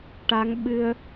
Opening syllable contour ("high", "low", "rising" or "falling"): rising